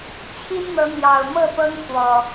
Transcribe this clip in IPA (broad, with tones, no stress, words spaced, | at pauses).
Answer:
t͡ɕʰi˦nn̪ɤ˨˦n̪jɑ˨˩ʊ̯ mɤ˥˨pɤ˦ŋ xwɔ˨˩